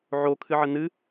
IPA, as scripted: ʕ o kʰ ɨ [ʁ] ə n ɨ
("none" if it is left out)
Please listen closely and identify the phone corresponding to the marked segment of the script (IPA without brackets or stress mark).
ʕ